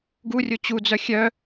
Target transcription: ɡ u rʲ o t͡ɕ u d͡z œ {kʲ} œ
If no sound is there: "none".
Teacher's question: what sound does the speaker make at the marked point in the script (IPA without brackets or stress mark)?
xʲ